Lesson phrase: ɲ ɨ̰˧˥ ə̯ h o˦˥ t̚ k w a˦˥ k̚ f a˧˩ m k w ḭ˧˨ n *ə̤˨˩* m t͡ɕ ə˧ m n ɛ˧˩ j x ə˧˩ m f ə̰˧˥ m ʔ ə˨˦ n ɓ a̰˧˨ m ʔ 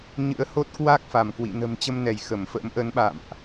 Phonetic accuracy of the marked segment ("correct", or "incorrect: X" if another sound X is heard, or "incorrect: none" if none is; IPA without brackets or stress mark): correct